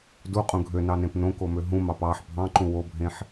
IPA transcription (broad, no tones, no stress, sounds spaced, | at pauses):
d u qʼ ũ ɡʱ ø n ɑ n ẽ p n õ k o m ø ɦ ũ m ɑ p ɑ ħ bʱ ɑ̃ ǃ ũ w o bʱ ẽ ħ